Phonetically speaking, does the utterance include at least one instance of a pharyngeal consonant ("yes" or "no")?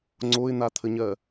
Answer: no